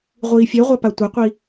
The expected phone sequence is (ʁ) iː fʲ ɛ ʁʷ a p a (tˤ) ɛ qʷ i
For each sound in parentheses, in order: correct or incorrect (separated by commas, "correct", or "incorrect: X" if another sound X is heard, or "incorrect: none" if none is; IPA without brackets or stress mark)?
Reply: incorrect: ʁʷ, incorrect: tʷ